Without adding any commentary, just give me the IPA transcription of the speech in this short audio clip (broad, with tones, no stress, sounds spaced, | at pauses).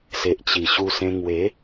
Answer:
s e˨ ʔ t͡ɕ i˨˩ ɕ u˧ s ẽ˧ ŋ w e˨˦